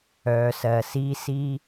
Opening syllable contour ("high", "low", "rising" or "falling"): low